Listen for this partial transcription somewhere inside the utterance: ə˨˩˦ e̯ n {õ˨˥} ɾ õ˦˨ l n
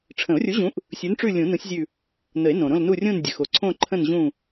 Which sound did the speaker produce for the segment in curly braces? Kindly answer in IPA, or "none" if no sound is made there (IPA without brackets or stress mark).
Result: õ˩